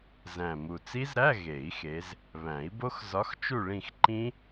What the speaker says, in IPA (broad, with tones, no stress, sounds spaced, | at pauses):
z æ̃˨˩ m u˨˩ t͡s i˦˥ z ɾ æ˧˥˧ ɣ e˨˩˦ i̯ x e˨˦ z | β æ̃˨˩˦ i̯ b o˦˥ x z ɒ˨˦ x t͡ʃ u˦˨ ɭ ĩ˦˨ x ǃ ĩ˦˥